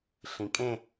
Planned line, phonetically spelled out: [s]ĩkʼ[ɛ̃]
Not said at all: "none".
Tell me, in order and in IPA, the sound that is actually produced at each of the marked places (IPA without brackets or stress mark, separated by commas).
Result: ɬ, ẽ